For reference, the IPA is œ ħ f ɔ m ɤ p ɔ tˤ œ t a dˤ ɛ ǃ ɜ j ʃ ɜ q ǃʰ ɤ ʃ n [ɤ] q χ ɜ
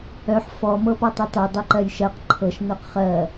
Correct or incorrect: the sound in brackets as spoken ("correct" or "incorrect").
correct